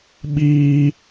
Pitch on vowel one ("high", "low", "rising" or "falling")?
high